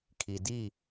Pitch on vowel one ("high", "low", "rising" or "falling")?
low